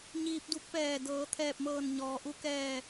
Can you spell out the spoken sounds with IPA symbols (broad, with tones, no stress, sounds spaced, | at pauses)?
ɲ iː˧ p̚ d u˧˥ k̚ p ɛː˧˩ d ɤː˩˧ t̪ʰ ɛː˧˩ p̚ m ɤː˧˩ n ɲ ɔː˩ ʔ u˧ k ɛː˧˩